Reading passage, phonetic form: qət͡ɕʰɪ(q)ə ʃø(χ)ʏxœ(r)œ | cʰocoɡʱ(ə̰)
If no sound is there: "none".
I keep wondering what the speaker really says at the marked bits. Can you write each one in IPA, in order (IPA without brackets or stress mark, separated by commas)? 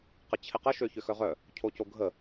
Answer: q, ç, ʁ, ə